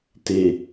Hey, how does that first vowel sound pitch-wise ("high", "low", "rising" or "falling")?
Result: low